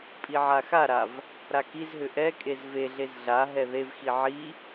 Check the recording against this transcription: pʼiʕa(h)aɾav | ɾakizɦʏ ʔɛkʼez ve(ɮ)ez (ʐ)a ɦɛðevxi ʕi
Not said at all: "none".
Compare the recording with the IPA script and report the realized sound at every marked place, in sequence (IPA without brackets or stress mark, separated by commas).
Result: x, ɮ, ɮ